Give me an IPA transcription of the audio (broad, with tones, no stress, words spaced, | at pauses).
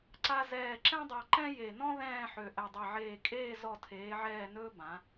ǀa˧zɛː˧˩ ǁɛ̃˥dˤa˧ ǃɛ̃˥je˧˩nɔ̃˥ ðɛ̃ː˥˧ħø˧˩ ʔɛ˧˩dˤe˧˩ʕeː˧˩ kʼeː˥˧ zɔ˧˩tʰeː˩˧ʕɛː˧˩nɵː˧ bã˩˧